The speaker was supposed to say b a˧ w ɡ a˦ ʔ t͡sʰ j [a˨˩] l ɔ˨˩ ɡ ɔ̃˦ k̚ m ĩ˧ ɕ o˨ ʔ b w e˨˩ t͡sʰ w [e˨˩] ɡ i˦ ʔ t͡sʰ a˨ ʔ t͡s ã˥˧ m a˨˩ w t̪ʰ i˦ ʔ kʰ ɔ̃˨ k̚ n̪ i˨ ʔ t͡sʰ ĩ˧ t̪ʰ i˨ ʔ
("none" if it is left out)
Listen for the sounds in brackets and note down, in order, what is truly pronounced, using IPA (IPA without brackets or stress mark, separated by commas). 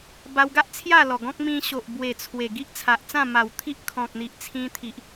a˥˧, e˨˩